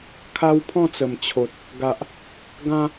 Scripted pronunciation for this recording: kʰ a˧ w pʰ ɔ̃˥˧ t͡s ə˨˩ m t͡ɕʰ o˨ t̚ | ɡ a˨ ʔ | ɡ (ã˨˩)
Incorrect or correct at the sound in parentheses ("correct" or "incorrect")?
incorrect